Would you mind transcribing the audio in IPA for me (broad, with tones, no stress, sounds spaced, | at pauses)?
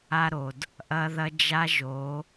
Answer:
a˦ ɾ o˨ d | ʔ ɐ˦ ð ɐ˦ d͡ʒ a˦ ʒ o˨˦